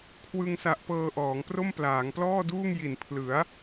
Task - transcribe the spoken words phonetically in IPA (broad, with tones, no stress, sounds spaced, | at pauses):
kʰ w ɯ˧ ŋ s a˨˩ ʔ p ɤː˧ ʔ ɔː˩˦ ŋ p r o˥˩ m p l aː˩˦ ŋ p l ɔː˥˩ d uː˥˩ ŋ j i˨˩ n pʰ l ɯ˩˦ a̯